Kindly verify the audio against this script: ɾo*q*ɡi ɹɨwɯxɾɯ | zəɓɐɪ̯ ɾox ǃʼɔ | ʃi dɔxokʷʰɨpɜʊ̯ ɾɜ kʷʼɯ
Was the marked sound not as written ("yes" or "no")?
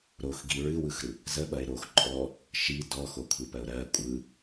yes